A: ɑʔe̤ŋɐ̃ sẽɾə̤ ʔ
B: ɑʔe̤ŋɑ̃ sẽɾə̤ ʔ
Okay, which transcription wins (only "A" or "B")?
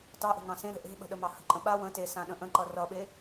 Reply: B